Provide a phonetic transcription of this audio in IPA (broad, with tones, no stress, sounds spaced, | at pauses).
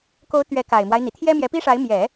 k o˧˥ ʊ̯ t̪ ɥ ɛ˧˥ k a˨˩ ɪ̯ m w a˦ ɪ̯ n̪ i˩ t̪ʰ j ɛ˥ m j ɛ˧˥ p i˥ ʂ a˧˥ ɪ̯ m j ɛ˨˩˦